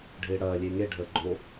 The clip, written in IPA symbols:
ɖʱɪːɽɐː lʲeŋe ɖʱəːɡ͡ǃo

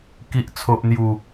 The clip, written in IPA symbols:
ki˨ʔt͡sʰo˨ʔn̪ju˨˩

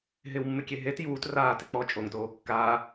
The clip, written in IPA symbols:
ɦɪwmːɪkʲe ɦet juːt raːtɪ k͡pɔ t͡ʃʼoŋtoː kːaː

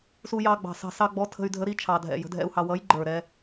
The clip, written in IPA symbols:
su˧jɑ˧ɡ͡bɑ̤˨˩sɑ̤˧ sɑ˧ɡ͡bɔ˨˥ tʰə̤˧y̯dʱə˨˥ ɾi˨˥t͡ʃʰɑ˨˩dʱɛ̰˨˩ jə̤˨˥dʱɛ̰˧u̯hɑ˧ wʌ˨˥jɡ͡ǃə˞˨˩ɾɛ˧

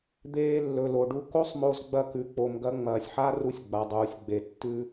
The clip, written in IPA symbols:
d̪eː˧lːɵ˩lo˩ɖu˧ ko˥sˤmo˧zɡ͡bɐ˧ kʉ˩k͡po˩m ɡɐ˧ ŋ͡mɐː˩sʲħa˥ru˧sʲ ɡ͡ba˩dˤuː˩sʲɡ͡be˩ tːʉ˧

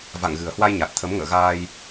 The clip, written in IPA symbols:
va̰˧˨ŋɣɨ˨˩ə̯hwa˧jɲa˨˩t̚ t̪ʰə˨˦mŋə̰ː˧˨ ɣaː˧j

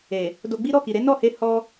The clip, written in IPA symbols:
e˨ | do˧ɡ͡bi˦ ɾɔ˦˨ki˨ɾe˨˦ nɔ˦˨he˧ hɔ˧

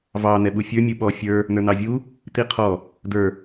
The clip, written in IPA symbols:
vɑ n̪ɛɓufʲə˞ mʲuɓɔ fʲə˞ | nə˞n̪ɑvʲu | t̪iqʰɔ | də˞

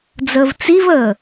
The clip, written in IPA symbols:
d͡zəːvt͡sivəː

